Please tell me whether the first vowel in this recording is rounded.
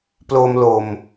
yes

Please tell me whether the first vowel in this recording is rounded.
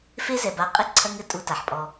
no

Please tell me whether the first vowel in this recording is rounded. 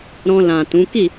yes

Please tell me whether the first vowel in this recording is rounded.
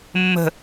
no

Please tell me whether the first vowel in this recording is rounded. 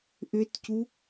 yes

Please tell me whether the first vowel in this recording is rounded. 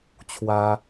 no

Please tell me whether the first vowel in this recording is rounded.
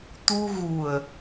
yes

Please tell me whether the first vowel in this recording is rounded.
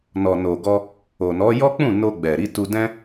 yes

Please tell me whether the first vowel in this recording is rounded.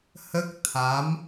no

